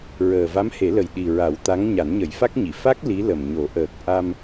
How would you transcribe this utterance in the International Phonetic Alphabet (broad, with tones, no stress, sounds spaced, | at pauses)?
ɹ əː˨˩ v a˧˥ m h e˨˩˦ l ə˨˩ j ɗ i˨˩ ɹ a˨˩˦ w t̪ a˧˥ ŋ ɲ a˨˩˦ n ɲ ə˨˩˦ j f a˦˥ k̚ ɲ i˨˩˨ f a˦˥ k̚ l i˧˥ l ə˨˩ m ɲ o˨˩˦ ʔ əː˨˩ k̚ ʔ a˧ m